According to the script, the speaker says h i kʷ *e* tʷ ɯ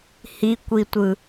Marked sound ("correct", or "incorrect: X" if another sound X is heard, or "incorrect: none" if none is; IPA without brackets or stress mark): incorrect: i